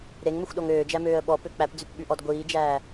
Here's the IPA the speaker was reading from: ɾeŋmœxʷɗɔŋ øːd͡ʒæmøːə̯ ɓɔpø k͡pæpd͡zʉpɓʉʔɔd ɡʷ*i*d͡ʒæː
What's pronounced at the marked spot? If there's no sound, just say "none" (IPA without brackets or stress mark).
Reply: iː